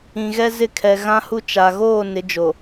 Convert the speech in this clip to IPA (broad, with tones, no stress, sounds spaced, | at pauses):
ĩ˨ ɣ ɛ˦ z ɪ˦˨ kʰ ɛ˨ ɣ ã˦ h u˦ t͡ʃ a˨ ɣ oː˦˨ n ɪ˨˦ d͡ʒ o˨